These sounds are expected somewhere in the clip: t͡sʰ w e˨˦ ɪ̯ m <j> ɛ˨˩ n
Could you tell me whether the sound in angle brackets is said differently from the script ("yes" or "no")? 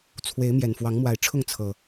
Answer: no